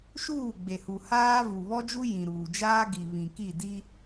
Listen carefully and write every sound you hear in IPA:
ʃuː˦˨ɡ͡be˨hu˨ haː˦ vu˨βɔ˦d͡ʒu˦ jĩ˨ ɾuː˨d͡ʒaː˦ɡi˨βĩ˨ ki˦˨di˦

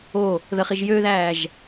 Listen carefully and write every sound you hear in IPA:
o | ðəχiʒ jøðæːʒ

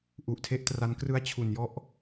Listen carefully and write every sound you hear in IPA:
ʔu˨˩ʔtʰe˥˩ʔtra˦˥nkrɯ˥˩a̯ t͡ɕʰu˨˩njɔ˥˩ʔ

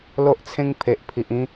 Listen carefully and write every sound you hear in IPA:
lo˦ʔt͡sʰẽ˦ŋ pʰe˨ʔpʰi˨ʔĩ˦

